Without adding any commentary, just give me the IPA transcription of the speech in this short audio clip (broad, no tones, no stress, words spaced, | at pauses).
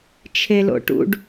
t͡ʃʰelo̰ʈṵɖ